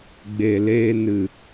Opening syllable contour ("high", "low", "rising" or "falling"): low